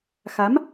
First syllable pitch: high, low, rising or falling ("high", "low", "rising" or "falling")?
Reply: rising